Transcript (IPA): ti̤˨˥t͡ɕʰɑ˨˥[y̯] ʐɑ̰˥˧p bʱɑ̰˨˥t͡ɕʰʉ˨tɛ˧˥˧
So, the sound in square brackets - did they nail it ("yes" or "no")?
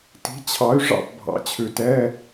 yes